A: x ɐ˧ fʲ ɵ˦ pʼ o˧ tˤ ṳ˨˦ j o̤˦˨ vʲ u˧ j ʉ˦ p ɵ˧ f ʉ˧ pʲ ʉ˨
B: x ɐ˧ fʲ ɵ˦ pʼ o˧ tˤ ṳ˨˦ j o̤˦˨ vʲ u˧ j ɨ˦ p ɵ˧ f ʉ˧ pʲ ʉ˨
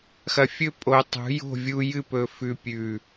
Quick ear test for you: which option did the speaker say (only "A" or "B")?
B